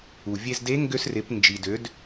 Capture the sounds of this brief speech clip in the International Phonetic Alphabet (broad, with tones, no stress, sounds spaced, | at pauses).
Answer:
u˩ vʲ e˧ z d e˧˥ ŋ ɡ ø˧ s r ɪ˩˧ p n d͡ʒ i˩ d ø˩˧ d